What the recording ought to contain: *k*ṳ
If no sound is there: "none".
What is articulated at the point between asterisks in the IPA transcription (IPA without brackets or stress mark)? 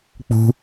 k͡p